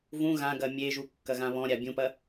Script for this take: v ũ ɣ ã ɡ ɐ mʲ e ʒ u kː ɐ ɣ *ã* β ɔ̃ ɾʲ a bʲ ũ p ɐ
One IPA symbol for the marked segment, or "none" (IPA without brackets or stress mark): ã